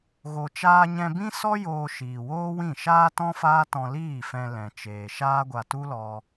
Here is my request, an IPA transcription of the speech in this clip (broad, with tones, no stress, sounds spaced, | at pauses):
ɣ o˨ t͡ʃ aː˧ ɲ ɛ̃˧ b ĩ˦ s ɔ˦ j oː˧ ʃ iː˨ w oː˦ w ĩ˦˨ ʃ aː˦ t ɔ̃˦ f aː˦ t ɔ̃˧ l iː˦˨ f ɛ̃˧ l ɛ̃˨ t͡ʃ eː˨ ʃ aː˦ ɡʷ a˧ t u˦ l ɔ˧